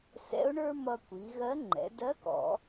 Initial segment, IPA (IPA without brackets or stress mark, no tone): s